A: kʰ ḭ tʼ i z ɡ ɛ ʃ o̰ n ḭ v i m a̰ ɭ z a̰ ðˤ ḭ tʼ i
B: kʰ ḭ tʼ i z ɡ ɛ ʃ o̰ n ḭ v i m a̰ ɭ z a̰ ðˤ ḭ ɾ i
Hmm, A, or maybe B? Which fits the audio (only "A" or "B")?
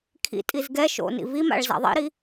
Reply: B